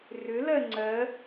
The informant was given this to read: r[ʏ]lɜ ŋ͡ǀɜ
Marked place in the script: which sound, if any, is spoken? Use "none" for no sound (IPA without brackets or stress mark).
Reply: ʏ